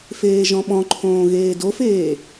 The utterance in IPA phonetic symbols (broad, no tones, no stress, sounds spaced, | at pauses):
f eː ʒ ɔ̃ ɓ ɔ̃ ǃʰ õː ɣ eː d o f eː